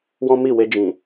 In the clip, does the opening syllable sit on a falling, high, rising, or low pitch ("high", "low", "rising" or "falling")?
high